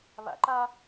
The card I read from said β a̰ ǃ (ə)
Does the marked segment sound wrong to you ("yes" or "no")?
yes